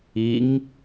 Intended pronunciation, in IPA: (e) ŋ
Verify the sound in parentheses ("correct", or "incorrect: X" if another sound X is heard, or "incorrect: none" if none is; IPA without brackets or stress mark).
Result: incorrect: i